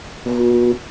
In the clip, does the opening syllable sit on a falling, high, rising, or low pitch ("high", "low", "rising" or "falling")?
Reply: high